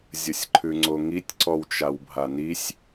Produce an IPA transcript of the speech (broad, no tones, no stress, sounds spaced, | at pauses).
zʲ ə sʲ ǃʰ ʉ ŋ͡ǀ o ŋ i tʲ ǀ ɔ w t͡ʃ a w bʱ a n i sʲ